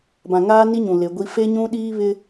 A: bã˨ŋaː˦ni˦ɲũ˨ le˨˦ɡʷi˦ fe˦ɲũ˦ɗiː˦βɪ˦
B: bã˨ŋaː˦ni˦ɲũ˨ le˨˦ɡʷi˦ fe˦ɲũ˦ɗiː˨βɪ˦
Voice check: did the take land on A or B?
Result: A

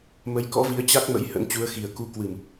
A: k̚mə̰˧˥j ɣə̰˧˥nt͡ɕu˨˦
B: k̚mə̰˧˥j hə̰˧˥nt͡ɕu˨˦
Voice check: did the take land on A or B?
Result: B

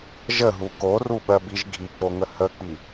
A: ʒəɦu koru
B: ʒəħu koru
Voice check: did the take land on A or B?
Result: A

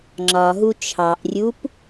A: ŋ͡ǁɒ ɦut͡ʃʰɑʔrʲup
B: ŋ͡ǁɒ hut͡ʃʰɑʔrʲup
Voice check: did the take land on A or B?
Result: A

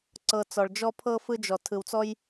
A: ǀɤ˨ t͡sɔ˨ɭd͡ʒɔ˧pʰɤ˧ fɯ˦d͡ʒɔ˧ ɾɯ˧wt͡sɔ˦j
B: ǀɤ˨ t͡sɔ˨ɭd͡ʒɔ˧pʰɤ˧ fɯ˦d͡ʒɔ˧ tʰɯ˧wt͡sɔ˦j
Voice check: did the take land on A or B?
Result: B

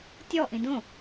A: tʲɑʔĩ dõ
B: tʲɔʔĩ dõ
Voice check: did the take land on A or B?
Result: B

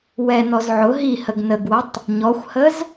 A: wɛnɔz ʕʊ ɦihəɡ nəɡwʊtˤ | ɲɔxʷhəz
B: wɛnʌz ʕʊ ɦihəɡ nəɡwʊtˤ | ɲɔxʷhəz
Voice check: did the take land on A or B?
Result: A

